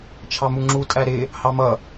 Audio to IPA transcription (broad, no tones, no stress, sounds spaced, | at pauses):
t͡ʃʰ ɑ m u ŋ͡ǁ u tʼ æ ɾ ɪ | h ɑ m ʌ